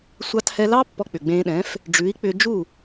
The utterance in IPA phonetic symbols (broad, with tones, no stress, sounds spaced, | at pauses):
sʷ ɑ˧ t h ɛ˧ l ɑ˥ pː ɔ˧ k͡p ʏ˩ ɡ͡b ẽː˧ ɗ ɛ̃˩˥ f | ɖ͡ʐ ʉ˩˥ i̯ k͡p ʏ˧ d͡ʒ u˥˩